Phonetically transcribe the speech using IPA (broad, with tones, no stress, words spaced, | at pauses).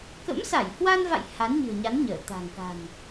kə̰˧˥msa˧˩jhwa˧nva̰˧˨j ha˨˦nɲɨ̤˨˩ə̯ɲa˨˦n ɲəː˧˩t̪a̤˨˩ŋka̤˨˩n